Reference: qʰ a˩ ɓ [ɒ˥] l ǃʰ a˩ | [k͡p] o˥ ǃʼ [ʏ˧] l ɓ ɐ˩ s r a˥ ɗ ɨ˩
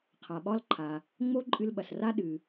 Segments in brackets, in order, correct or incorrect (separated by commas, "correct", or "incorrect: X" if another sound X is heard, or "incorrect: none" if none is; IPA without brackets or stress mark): correct, incorrect: ŋ͡m, incorrect: ɨ˧